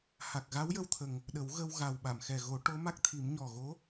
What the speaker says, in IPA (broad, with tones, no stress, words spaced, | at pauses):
ha˨˩k̚ɣa˧˥wjə˧wt̪ʰə˨˩ŋ | ɗə˨˩˦wɣə˧wɣa˨˩w ɓa˨˩˨mxɛ˨˩ɣo˨˩˦ ʈo˧˥ma˦˥k̚t̪ʰi˨˩˦m ɲɔ˨˩ɣo˧˥